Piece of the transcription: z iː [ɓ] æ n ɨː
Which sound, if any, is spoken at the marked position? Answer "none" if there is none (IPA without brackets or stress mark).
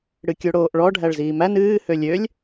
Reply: m